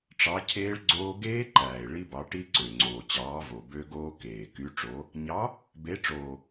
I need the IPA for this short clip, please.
ʈ͡ʂ ɑ˨˥ cʰ eː˦˥ ɭ ɡ͡ǀ oː˦˥ ɡ eː˦˥ ǃ æː˨˩ e̯ ɭ i˦˥ b ɑ˨˥ ʈ i˦˥ ǀ ø˨˩ ŋ͡ǀ oː˨˩ t͡ɕ ɑː˨˥ v o˨˩ b ø˦˥ ɡ oː˦˥ k eː˨˩ k y˨˥ ʈ͡ʂ o˨˥ | ɲ ɑ˨˥ | b e˨˥ ʈ͡ʂ oː˨˩

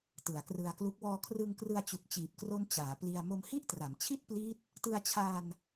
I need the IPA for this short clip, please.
t ɯ˩˦ a̯ k r ɯ˧ a̯ k l u˦˥ k̚ w ɔː˧ kʰ r ɯ˧ ŋ k r ɯ˧ a̯ t͡ɕ u˨˩ k̚ t͡ɕ iː˨˩ p̚ k r o˦˥ n t͡ɕ aː˩˦ p l i˧ a̯ m o˧ m h i˥˩ ʔ t r a˩˦ m t͡ɕʰ i˥˩ t̚ p l iː˦˥ t̚ | t ɯ˧ a̯ t͡ɕʰ aː˧ n

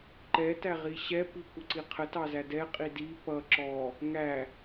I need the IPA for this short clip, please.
ǃ ɛ t æ ʁ i ɕ ɛ p i kʷ ə ǀ i qʰ ə t ɑ z æ d ɛ qʼ i d i p ʌ ǁ ɔ | ŋ æ

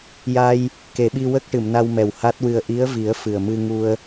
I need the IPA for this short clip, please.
j a˧ j | k e˨˩˦ ɓ i˧ w ə˦˥ k̚ ʈ ɨ˨˩˨ m n a˧ w m ɛ˨˩ w h a˦˥ t̚ w ɨ˧ ə̯ ʔ i˧˥ ə̯ v i˨˩˦ ə̯ f ɨ˨˩ ə̯ m ɨ˧ ŋ u˧ ə̯

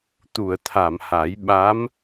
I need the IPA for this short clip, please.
t̪ u˨˩˨ ə̯ t̪ʰ a˨˩˨ m h a˨˩˦ j ɓ a˧˥ m

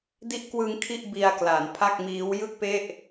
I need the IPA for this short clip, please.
d i˦˥ ʔ k w ɯ˧ ŋ kʰ i˥˩ ʔ b i˧ a̯ k l a˩˦ n pʰ a˥˩ k̚ m iː˦˥ w j ɯ˥˩ k̚ p e˥˩ ʔ

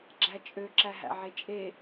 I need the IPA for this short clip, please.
ɡ͡ǁ æ t͡ʃʼ ø ǁ æ ɦ æ̰ ʕ e t͡ʃʼ e

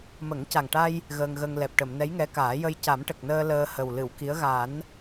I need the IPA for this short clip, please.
m ə˨˩˦ ŋ c a˨˩ ŋ ʈ a˧ j | ɣ əː˧ ŋ ɣ ə˧ ŋ l ɛ˨˩ p̚ ʈ ə˨˩˨ m n ɛ˧˥ j ŋ ɛ˧˥ k aː˨˩˦ j ə˧ j c a˨˩˦ m ʈ ə˨˩ k̚ n əː˧ l əː˧ h ə˨˩ w l ɨ˨˩˨ w k i˧˥ ə̯ ɣ a˨˩˦ n

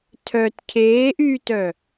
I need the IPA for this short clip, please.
tʰ œ t cʰ eː ʔ yː t œ

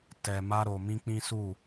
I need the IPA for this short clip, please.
t ɛ˧ m a˦ ɾ o˧ m ĩ˦ k͡p ĩ˦ s u˦˨

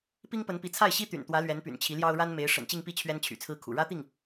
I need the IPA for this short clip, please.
p i˥ ŋ p ə˧˥ n p i˧˥ t͡sʰ a˥˩ ɪ̯ ɕ i˥ t̪ y̰˨˩ n t̪ w ä˧˥ l ɥ ɛ˧˥ n p y̰˨˩ n t͡ɕʰ i˧˥ l j ɑ˥ ʊ̯ ɻ a˥ n m e˧˥ ɪ̯ ʂ ə̰˨˩ n t͡ɕ i˥˧ ŋ p i˥˩ t͡ɕʰ ɥ ɛ˥ n t͡ɕʰ y̰˨˩ t͡sʰ ɹ̩˥ kʰ ṵ˨˩ ɻ ä˥ t̪ i˥˩ ŋ

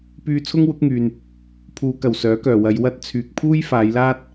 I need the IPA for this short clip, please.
p yː˧ t͡sʰ ʊ˥ ŋ w ʊ˨˥ k̚ ŋ yː˨ n | pʰ uː˨˧ k ɐ˨˩ w s œː˨˥ k œː˨˩ w ɐ˨˧ j w ɐ˥ t̚ t͡sʰ yː˨ k̚ pʰ uː˥ j f aː˨˧ j l aː˥ t̚

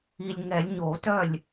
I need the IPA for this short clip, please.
i˨ lʲ ŋ ɛ˨˩˦ lʲ ɲ o˨˩˦ t œ˥˩ lʲ

